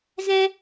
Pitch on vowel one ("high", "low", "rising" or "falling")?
high